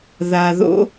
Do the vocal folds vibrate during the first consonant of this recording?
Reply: yes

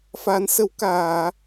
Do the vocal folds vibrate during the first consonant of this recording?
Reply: no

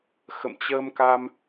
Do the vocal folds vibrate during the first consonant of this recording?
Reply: no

